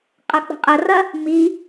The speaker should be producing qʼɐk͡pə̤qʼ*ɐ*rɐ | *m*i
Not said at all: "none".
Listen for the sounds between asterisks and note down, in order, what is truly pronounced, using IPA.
ɐ, m

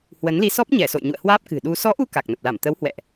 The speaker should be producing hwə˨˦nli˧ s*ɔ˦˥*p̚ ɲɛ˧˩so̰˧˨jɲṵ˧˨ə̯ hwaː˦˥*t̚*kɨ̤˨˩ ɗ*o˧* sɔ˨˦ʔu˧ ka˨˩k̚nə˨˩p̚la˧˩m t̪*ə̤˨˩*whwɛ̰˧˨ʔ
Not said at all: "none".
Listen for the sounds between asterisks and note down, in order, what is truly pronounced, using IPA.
ɔ˦˥, p̚, u˧, ə˨˦

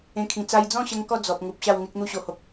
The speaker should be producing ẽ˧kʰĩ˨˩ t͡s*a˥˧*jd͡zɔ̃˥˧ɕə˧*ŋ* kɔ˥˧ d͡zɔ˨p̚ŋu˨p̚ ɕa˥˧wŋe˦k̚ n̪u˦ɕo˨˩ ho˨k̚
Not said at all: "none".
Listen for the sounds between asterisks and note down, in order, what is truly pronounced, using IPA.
a˧, ŋ

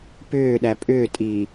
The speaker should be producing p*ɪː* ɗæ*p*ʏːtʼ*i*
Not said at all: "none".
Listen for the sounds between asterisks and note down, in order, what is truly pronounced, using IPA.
ʏː, pʼ, i

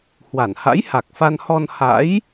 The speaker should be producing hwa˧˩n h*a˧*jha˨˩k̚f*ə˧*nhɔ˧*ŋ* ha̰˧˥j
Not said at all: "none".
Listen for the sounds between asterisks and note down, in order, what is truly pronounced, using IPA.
a̰˧˥, a˧, n

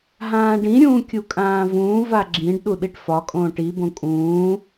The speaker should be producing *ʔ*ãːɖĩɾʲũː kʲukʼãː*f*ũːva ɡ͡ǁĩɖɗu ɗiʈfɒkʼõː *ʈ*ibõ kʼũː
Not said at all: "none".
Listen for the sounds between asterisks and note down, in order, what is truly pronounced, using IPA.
ɦ, v, ʈ

